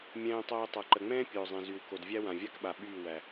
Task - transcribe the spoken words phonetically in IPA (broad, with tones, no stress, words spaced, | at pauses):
mʲɛ̃ː˧tˤoː˧ tˤa˨ǃə˨ŋ͡mɛ̃ː˦ pʲoː˨zˤɛ̃˨zy˨w ko˨d vʲæ˦wã˨vʲa˦kɓa˨ ɓyː˦˨ wæ˨